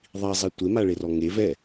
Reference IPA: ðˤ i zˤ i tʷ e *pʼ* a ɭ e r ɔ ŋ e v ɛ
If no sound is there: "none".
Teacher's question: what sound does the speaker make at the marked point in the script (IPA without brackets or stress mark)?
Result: m